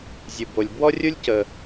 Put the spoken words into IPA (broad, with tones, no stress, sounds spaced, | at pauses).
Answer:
zʲ ɯ˩ b o˩ lʲ b w ɔ˥ rʲ u˥ lʲ c ə˩